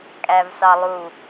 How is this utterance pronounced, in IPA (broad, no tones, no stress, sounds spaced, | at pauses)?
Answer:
kʼ æ v s ɑ lˠ u